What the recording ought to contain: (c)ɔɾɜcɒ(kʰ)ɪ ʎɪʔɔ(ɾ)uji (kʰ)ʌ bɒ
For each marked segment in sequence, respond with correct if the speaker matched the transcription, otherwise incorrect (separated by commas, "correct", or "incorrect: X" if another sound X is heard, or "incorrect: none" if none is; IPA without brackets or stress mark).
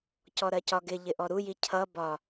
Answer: correct, incorrect: ɡ, correct, incorrect: cʰ